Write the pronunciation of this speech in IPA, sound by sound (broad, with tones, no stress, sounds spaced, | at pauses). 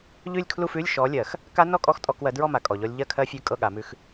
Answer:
ʎ ʉ˥˧ lʲ kʰ l u˥˧ f ʉ˧˥˧ lʲ ʃ ɔ˨˦ lʲ ɜ˨˩˦ x | k a˦˥ n ɔ˥˧ kʼ ɔ˦˥ x tʼ ɔ˧˥˧ k w ɜ˨˦ d ɹ ɔ˥˧ m a˨ kʼ ɔ˨ ʎ ɔ˦˥ lʲ ʎ ɜ˥˧ kʰ ɜ˦˥ fʲ ʉ˧˥˧ kʼ ɤ˥˧ ɠ a˨˩˦ m ʉ˧˥˧ x